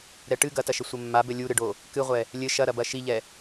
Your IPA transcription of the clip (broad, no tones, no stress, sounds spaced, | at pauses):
ɾ ɛ ʈ ɨ ɡ ɐ t ɐ ʃ ɘ sʷ ɘ mː a b ɘ lʲ u ɾ ɨ ɖ o | k ɨ ʁʷ ɛ | lʲ ɘ ʃ ɐ ɾ ɐ b ɐ ʃ i ʎ ɛ